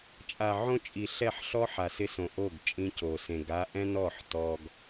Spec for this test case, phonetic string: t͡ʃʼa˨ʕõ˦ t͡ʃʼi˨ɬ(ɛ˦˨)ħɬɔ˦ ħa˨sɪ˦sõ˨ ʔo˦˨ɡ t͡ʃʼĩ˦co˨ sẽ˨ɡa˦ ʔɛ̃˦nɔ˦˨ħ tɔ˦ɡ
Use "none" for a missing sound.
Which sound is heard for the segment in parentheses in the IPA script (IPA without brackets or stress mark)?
ɛ˦˨